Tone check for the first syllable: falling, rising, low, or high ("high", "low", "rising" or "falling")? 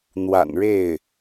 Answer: low